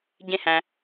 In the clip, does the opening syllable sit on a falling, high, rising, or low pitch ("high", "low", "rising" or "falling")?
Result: high